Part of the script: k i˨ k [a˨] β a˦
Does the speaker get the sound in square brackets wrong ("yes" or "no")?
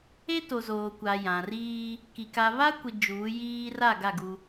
no